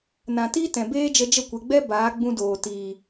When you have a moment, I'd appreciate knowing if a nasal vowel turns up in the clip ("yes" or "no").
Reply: yes